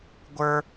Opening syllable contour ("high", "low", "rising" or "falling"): high